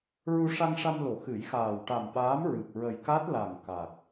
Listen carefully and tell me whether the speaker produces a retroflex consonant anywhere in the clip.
yes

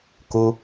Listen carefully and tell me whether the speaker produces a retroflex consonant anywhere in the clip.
no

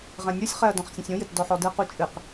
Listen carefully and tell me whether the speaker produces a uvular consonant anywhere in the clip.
yes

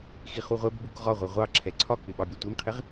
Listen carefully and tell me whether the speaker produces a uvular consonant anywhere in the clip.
yes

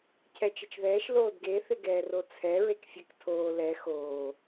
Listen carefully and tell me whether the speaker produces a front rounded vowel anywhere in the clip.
no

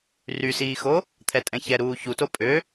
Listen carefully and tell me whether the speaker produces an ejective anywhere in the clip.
yes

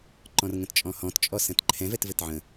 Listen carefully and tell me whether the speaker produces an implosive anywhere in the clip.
no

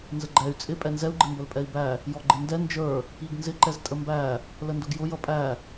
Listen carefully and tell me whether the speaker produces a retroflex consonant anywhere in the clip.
no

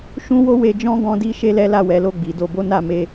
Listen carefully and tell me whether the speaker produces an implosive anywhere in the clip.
no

